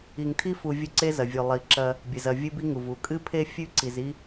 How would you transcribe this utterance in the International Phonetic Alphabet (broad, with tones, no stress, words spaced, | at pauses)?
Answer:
i˨ŋtʰi˦fu˨ vʲɵ˦ǀe˦ zɐ˩vʲʉ˩ lˠi˩ǁɐ˨ | bʲɨ˩zɐ˨ vʲɨ˦bi˦ŋu˩v u˩ kʼɨ˥pʰe˥ fʲʉ˥ǀi˩zi˦